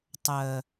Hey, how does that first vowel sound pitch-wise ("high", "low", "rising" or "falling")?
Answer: low